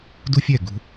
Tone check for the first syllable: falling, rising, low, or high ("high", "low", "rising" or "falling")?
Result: high